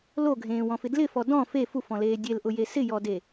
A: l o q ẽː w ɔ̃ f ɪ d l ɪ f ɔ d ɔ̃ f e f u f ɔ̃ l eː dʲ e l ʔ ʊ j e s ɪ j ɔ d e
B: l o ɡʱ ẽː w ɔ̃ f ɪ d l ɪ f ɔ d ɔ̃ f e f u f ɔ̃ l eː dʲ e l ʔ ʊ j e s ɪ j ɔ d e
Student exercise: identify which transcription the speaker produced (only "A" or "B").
B